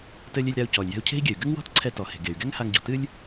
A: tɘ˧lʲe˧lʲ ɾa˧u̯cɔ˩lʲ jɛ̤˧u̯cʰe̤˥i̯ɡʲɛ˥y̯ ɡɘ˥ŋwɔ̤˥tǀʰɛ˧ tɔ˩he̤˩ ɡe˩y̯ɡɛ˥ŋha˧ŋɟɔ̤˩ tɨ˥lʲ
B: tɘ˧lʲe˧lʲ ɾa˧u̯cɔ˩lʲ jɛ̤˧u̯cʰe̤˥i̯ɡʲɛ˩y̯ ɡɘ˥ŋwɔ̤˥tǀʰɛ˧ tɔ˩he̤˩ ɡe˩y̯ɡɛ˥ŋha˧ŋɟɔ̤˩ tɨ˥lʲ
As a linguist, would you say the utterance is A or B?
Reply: B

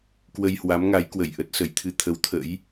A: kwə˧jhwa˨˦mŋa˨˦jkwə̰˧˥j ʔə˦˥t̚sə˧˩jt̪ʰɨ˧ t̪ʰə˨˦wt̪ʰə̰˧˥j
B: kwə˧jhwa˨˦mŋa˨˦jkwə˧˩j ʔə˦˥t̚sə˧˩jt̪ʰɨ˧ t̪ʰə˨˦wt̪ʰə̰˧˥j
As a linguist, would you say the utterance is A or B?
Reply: B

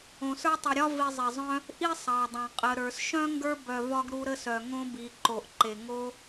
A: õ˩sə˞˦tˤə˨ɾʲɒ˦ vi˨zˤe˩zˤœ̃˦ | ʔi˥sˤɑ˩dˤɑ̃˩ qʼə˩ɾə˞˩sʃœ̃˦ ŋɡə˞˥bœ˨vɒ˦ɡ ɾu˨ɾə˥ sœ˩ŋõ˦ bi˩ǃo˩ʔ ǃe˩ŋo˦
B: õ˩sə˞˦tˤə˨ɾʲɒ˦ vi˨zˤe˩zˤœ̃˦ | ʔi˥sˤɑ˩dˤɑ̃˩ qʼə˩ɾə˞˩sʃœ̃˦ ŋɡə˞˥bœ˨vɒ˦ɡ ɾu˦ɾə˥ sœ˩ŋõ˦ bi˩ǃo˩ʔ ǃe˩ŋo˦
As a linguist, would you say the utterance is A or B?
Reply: B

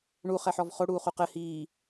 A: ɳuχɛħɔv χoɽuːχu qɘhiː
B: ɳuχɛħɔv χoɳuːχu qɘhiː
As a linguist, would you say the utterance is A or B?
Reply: A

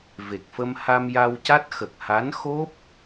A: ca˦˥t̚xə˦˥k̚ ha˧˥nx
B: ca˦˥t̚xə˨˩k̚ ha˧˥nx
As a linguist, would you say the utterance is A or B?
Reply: B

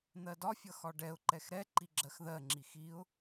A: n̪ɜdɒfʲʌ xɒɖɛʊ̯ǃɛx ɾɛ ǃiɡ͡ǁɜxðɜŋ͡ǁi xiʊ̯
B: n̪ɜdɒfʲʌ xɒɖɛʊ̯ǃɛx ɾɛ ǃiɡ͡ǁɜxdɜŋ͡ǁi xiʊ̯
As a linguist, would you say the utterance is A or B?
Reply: A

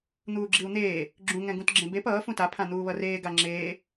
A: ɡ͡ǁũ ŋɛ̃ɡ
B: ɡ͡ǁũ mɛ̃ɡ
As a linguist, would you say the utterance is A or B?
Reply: A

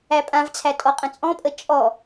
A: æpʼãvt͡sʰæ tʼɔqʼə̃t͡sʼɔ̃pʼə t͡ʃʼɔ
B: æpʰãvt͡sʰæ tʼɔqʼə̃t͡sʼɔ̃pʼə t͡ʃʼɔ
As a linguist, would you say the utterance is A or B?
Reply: A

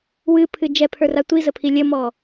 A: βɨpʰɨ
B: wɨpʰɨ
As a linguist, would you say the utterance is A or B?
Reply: B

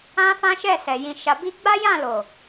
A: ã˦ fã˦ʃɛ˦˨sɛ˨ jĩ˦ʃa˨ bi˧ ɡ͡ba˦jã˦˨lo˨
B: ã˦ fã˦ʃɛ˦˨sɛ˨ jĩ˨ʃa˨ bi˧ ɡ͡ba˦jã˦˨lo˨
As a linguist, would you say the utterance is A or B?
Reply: B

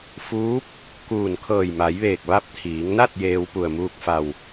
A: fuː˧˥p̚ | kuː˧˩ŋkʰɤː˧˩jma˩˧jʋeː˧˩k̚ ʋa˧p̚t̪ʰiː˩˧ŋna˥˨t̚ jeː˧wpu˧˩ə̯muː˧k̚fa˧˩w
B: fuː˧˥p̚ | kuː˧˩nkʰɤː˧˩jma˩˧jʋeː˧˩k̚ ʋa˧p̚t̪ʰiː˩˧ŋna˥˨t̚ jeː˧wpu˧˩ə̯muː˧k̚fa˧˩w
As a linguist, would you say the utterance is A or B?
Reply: B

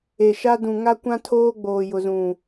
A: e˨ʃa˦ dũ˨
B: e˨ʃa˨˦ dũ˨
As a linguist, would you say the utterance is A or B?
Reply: A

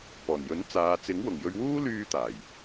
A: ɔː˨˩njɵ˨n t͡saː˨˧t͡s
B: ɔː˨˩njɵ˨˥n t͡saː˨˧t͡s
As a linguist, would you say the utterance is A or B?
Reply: B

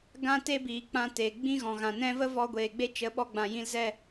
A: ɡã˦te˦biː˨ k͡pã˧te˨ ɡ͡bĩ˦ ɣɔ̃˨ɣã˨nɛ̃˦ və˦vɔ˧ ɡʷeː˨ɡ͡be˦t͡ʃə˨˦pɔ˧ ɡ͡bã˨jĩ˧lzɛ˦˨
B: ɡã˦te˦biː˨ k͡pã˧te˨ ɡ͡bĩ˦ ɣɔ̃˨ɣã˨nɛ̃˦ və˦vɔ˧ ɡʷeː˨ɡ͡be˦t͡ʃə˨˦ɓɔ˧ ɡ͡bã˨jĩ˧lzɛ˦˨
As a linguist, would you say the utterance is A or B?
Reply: B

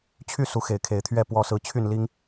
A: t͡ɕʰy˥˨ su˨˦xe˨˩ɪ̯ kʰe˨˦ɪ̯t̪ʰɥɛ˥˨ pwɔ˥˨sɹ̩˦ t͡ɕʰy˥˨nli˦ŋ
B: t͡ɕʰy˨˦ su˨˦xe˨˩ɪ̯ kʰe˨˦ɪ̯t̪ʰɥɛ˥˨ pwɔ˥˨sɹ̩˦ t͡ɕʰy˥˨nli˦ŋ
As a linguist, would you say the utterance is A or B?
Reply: A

